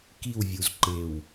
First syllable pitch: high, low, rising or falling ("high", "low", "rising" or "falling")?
falling